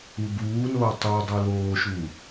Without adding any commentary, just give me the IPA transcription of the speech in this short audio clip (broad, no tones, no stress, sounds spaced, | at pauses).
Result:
u b uː n oː tˤ u dˤ u l oː ʃ u